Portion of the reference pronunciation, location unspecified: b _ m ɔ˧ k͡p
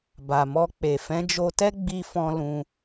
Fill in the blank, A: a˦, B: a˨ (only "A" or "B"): B